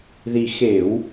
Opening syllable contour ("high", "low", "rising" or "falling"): low